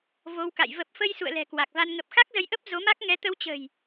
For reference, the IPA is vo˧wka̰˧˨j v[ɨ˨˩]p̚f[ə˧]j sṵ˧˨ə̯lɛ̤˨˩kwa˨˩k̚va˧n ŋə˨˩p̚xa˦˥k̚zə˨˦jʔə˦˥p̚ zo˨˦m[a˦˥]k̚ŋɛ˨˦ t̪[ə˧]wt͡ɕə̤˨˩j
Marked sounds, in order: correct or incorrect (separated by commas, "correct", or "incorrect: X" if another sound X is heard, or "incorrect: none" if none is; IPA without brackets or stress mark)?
incorrect: ə˨˩, correct, correct, correct